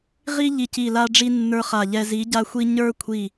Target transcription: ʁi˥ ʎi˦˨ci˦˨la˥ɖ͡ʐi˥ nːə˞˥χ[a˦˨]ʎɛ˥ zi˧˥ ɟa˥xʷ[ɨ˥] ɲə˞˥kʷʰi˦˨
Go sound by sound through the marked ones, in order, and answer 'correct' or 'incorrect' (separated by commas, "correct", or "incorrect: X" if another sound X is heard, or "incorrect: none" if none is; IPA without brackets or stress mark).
correct, incorrect: i˥